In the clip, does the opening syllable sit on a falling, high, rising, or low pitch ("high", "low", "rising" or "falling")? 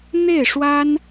falling